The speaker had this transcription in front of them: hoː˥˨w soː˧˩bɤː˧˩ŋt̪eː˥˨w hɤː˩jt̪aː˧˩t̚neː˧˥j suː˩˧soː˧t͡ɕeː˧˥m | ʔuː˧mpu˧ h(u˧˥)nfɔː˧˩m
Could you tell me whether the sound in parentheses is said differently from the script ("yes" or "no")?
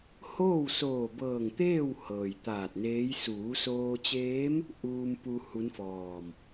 no